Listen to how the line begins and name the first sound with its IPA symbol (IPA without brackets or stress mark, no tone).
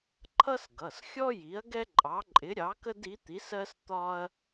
ǃʰ